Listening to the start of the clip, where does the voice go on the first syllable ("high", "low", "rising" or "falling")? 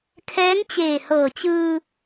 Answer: rising